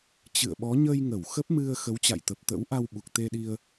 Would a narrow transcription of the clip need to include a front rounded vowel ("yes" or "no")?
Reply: no